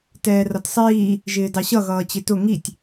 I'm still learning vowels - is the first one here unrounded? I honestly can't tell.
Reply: yes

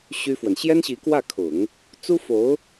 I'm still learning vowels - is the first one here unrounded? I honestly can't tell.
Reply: no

